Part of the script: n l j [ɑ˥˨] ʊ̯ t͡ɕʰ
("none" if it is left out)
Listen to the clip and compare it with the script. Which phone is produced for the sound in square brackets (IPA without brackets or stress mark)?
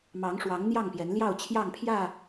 ɑ˥˨